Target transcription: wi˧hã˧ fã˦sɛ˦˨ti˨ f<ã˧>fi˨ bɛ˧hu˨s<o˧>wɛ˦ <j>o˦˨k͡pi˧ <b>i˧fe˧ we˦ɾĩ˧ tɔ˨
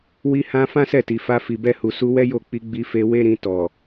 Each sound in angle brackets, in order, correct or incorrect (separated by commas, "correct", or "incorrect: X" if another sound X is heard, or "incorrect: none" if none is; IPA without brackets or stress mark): incorrect: a˧, incorrect: u˧, correct, incorrect: ɡ͡b